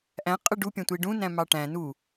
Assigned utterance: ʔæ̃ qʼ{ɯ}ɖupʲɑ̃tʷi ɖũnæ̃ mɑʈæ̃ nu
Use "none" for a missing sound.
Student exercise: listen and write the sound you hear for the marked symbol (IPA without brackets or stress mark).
ɯ